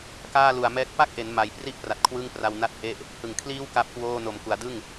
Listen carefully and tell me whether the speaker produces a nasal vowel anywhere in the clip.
no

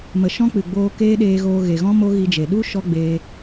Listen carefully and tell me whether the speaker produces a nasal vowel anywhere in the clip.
yes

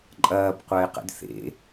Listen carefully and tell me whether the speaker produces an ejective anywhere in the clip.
yes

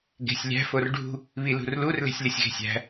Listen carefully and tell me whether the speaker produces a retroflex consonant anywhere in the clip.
yes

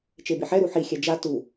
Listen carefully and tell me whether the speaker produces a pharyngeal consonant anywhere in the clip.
yes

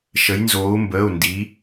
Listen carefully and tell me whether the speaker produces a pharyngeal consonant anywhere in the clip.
no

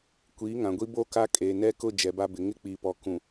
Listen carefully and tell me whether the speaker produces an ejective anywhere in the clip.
yes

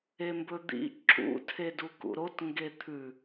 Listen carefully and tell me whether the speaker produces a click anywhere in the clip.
yes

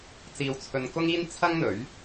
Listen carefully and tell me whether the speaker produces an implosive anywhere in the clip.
no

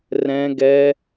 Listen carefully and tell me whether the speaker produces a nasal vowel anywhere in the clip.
yes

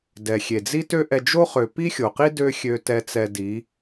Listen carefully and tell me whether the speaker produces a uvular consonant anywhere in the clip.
yes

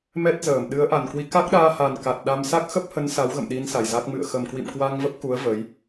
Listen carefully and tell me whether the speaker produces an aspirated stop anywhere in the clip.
no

